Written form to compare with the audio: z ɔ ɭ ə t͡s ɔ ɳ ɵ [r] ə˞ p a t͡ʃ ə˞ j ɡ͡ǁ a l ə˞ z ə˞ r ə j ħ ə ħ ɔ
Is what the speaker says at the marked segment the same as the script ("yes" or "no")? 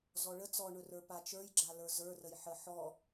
yes